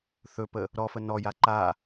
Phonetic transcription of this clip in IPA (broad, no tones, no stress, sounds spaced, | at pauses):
θ ɵ p ə | ɾ ɔ f ə n ɔ j a ǃ a